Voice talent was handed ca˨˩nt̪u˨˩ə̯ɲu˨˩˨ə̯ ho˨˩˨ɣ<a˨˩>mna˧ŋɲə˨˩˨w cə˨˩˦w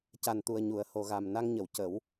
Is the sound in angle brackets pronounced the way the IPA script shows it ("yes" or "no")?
yes